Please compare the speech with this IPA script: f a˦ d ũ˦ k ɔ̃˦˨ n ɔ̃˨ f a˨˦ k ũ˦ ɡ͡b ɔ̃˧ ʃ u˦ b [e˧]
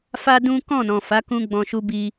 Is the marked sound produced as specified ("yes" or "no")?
no